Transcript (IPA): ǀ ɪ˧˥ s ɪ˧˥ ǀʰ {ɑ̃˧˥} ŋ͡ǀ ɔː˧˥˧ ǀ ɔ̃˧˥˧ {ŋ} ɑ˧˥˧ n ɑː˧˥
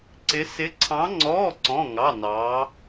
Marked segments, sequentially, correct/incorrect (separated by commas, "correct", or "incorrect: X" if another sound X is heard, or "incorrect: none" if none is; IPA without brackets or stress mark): correct, correct